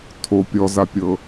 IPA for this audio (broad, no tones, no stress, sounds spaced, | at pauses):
tʰ o pʲ ɔ z a pʲ ɤ